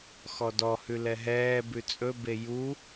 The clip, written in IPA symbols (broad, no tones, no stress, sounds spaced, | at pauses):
x ɔ d ɔ h ʉ l ɛ ɦ ɛː b ʉ t͡sʼ ɵ b e j u